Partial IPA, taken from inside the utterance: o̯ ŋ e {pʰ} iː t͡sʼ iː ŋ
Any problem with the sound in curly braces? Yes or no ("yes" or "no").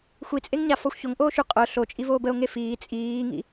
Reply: yes